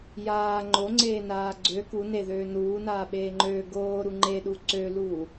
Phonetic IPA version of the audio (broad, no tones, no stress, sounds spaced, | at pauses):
j aː ŋ͡ǃ o ŋ͡ǀ eː n aː ɡ͡ǀ ø k u n e ð øː n uː n aː ɓ eː ŋ͡ǃ øː ɡ oː ɾ u ŋ͡ǃ e ɗ u ǀ ø l uː